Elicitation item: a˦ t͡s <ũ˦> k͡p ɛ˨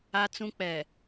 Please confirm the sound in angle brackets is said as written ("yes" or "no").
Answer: yes